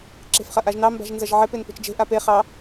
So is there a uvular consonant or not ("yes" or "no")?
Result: yes